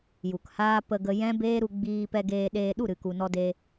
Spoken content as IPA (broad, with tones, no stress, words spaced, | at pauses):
ju˨khaː˦ pə˧ ɡə˧jɛ̃˦beː˦ɾu˧ ɡ͡biː˧pɛ˧ɡeː˧ɗeː˧ ɗu˦˨ɾɨ˨ku˨ nɔ˧de˧